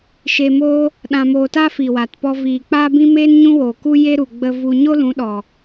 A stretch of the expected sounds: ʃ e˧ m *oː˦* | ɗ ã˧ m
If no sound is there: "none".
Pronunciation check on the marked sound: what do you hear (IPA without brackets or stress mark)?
oː˦